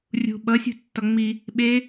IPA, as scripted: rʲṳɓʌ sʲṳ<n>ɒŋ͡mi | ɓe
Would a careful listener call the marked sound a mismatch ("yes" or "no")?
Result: yes